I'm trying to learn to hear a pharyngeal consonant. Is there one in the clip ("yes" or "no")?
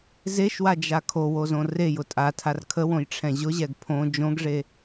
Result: no